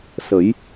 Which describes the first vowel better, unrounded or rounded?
unrounded